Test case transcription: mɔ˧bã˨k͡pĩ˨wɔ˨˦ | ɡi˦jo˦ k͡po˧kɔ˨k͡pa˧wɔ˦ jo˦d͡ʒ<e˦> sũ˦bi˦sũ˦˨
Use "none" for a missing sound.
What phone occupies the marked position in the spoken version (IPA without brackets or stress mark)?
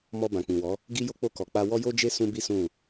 e˦